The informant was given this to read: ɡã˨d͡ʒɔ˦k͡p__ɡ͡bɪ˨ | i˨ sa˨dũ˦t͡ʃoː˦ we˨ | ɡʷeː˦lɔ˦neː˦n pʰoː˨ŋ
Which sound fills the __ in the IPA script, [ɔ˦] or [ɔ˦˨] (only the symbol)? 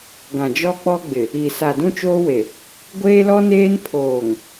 ɔ˦